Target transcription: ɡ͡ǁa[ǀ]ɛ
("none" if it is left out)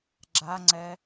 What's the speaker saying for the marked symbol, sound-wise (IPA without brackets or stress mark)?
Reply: ŋ͡ǀ